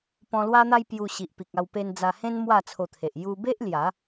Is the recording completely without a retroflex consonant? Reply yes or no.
yes